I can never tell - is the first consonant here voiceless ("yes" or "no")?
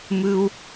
no